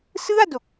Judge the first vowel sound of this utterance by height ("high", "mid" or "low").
high